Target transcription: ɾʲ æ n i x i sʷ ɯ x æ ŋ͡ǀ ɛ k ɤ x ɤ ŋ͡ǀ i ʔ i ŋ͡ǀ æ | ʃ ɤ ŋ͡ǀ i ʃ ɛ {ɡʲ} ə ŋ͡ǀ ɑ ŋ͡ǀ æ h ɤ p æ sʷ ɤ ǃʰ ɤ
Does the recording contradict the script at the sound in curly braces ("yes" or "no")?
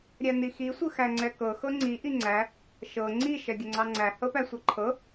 no